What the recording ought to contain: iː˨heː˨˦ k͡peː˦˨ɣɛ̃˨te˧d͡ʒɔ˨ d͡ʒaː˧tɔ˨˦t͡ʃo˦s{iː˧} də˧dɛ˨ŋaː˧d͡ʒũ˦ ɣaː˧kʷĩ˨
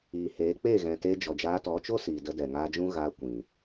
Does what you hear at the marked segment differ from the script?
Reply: yes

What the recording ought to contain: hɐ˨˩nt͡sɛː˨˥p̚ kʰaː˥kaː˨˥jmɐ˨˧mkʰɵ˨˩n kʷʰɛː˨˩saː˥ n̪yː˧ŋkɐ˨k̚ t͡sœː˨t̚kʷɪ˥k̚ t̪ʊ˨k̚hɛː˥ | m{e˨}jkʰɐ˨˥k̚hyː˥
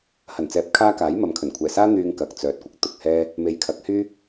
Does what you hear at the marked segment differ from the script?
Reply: no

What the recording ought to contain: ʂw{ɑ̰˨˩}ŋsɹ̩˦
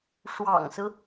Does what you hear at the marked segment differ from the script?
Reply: no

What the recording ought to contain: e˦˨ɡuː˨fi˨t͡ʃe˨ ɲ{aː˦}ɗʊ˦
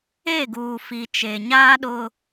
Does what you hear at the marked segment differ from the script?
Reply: no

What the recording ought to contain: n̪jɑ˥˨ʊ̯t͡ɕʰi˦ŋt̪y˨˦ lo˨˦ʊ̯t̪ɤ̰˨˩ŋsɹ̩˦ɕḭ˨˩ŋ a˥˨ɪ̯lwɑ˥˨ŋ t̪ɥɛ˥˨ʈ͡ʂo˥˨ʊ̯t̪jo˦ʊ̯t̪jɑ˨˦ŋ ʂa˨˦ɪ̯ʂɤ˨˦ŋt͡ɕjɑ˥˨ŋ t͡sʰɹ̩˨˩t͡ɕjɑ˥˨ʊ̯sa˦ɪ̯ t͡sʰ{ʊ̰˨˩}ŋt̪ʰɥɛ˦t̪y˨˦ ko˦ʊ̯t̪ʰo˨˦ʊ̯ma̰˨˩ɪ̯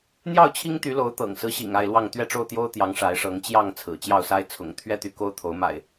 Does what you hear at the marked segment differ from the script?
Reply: no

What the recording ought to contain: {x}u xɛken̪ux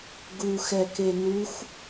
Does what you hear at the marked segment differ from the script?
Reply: yes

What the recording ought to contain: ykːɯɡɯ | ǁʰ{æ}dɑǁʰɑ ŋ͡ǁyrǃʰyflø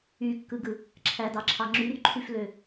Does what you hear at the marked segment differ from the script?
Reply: no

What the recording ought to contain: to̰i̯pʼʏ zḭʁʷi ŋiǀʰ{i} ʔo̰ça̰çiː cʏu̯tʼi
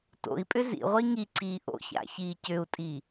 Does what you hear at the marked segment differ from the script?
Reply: yes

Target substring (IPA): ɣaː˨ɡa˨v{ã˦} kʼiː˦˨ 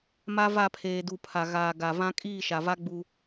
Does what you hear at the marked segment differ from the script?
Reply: no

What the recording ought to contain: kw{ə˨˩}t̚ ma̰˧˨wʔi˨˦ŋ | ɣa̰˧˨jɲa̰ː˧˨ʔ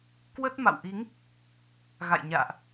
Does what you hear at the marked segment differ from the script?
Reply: yes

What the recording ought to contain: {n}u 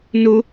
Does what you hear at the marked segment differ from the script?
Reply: no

